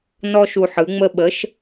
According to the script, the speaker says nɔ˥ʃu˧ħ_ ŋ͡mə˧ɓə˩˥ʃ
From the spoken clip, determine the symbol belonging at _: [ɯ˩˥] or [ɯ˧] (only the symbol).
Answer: ɯ˩˥